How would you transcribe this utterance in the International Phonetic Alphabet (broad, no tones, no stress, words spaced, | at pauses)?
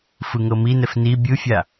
fɯŋɤminɛf ni bʲɯfʲa